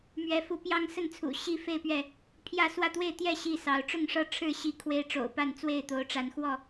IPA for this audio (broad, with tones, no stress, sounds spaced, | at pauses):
m ɥ ɛ˨˦ f u˨˦ p j ɑ˦ ŋ s ə˥˨ n t͡sʰ ṵ˨˩ ɕ i˥˨ f e˥˨ ɪ̯ p ɥ ɛ˥˨ | pʰ j ä˥˨ s w ä˥˨ t̪ w e˥˨ ɪ̯ t̪ j ɛ˥˨ ɕ i˥˨ s ɑ˨˦ ʊ̯ ʈ͡ʂ ʊ˥˨ ŋ ʂ ɤ˥˨ ʈ͡ʂʰ ɻ̩˥˨ ɕ i˦ kʰ w e˦ ɪ̯ ʈ͡ʂ o̰˨˩ ʊ̯ p a˥˨ n t͡s w e˥˨ ɪ̯ t̪ o˨˦ ʊ̯ ʈ͡ʂ a˨˦ n x w ɔ˥˨